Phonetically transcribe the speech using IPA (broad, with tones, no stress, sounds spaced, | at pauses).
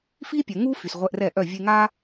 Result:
f i˦ pʲ ɛ˨ ŋ u˦ f y˨ s ʁʷ ɛ˧ ʔ r ɛ˦˨ ʔ œ˦˨ vʲ e˧ ŋ a˦